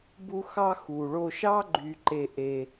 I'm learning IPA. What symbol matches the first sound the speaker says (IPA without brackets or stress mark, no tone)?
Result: b